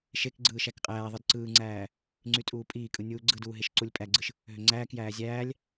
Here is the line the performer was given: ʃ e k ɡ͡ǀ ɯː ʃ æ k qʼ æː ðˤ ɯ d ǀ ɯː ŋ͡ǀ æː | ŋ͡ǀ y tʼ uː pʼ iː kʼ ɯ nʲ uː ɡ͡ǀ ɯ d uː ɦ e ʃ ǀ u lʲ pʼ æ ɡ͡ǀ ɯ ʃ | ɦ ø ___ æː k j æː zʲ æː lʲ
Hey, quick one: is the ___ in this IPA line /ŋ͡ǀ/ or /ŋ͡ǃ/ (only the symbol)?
ŋ͡ǀ